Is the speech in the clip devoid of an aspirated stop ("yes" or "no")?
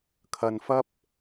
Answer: no